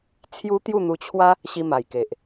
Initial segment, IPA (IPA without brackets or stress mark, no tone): t͡sʰ